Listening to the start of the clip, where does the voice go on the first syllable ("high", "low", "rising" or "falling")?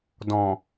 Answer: low